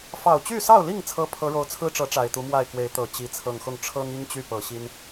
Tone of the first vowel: low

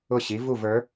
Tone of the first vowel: falling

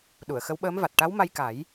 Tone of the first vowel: low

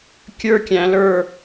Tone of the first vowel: high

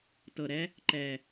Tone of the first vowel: low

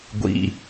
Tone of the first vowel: low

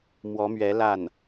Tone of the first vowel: rising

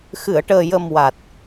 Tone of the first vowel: low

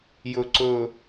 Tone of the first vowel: low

